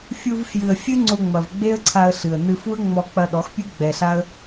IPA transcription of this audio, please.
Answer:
fʲ u˧ v f j ɨ˨ ə̯ fʲ ɨ˦ ŋ͡ǀ o˧ ŋ͡m ɐ˨ v ɡ͡b e˦ ə̯ ǀʰ a˧ ə̯ ɬ ɨ˨ ə̯ n ɨ˧ f u˦ ə̯ ŋ͡m ɔ˧ k͡p ɐ˧ ɗ ɔ˨˦ x pʲ ɨ˦ ɡ͡b ɛ˧ ɬ a˦ ə̯

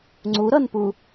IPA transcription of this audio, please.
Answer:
ŋ͡ǀ u ɾ ʌ n p u

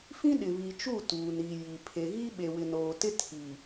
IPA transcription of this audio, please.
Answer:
f ĩ˦ ɗ ɪ˨ β i˨ t͡ʃ u˦˨ t uː˨ n i˨ j i˨ pʰ e˨ ɣ i˦ ɓ e˨ w ɪ˨ n oː˨ t ɪ˦ tʰ i˨

